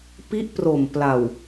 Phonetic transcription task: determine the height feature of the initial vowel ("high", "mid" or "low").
high